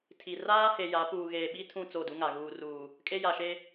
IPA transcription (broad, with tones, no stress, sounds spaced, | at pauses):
tʰ i˨ r aː˦ h e˨ j a˨˦ p uː˨ ɣ eː˨ ɓ i˦ tʰ ũ˦˨ t͡s o˦˨ d u˦ ŋ a˨ ɣ uː˨ r uː˨ | kʼ e˦ j a˨ ʃ e˦